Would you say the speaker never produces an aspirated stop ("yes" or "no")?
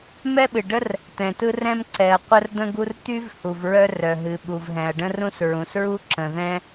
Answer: yes